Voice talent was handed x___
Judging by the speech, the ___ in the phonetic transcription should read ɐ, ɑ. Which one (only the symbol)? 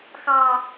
ɑ